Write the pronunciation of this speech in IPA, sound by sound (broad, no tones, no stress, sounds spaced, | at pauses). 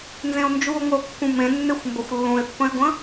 n z ẽ o̯ n d͡ʒ u o̯ ŋʷ ə o̯ kː ũ m ẽ nː e xʷ m b ə xʷ lː ũ e̯ pː ə̃ e̯ ɡʷ ə̃